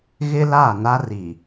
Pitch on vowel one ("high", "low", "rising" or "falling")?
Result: high